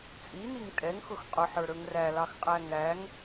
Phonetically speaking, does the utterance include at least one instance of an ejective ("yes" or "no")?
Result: yes